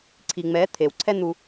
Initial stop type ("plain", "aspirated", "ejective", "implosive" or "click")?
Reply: click